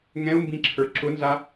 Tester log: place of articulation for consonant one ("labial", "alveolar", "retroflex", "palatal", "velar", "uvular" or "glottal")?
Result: velar